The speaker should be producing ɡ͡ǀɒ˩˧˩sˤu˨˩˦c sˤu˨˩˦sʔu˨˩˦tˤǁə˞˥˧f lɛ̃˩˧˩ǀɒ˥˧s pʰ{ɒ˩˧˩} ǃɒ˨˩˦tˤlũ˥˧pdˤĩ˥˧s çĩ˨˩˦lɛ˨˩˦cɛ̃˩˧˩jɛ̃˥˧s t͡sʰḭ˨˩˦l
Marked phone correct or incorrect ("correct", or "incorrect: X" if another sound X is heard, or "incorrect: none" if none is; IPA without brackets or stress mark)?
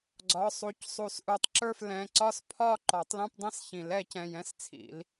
incorrect: ɒ˥˧